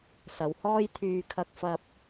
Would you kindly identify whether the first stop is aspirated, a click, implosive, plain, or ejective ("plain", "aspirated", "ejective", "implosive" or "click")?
aspirated